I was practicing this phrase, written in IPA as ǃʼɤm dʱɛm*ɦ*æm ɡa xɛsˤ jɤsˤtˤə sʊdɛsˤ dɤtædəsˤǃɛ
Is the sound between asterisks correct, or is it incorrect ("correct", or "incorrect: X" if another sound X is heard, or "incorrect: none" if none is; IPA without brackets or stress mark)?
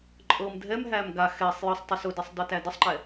correct